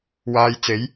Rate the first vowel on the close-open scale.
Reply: open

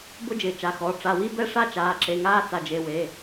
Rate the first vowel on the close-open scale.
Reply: close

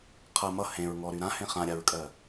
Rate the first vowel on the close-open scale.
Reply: mid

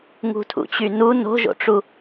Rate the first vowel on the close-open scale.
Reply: close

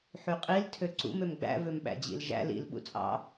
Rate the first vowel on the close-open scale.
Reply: close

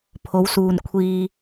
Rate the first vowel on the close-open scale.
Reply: mid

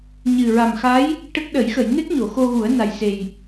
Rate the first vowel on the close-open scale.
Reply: close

